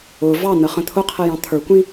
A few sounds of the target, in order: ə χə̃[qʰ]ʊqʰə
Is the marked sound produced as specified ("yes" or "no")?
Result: no